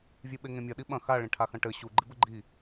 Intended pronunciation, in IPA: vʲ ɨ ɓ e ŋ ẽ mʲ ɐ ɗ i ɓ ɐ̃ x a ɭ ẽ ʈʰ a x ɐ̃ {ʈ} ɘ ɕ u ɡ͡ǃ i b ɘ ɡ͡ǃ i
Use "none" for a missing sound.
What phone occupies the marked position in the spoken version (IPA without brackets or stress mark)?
ʈ